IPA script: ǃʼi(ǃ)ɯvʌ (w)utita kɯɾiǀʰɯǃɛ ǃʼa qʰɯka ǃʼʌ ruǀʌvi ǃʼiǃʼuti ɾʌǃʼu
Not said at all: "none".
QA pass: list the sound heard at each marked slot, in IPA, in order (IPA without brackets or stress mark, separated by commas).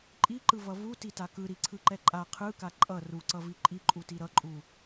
ǃ, v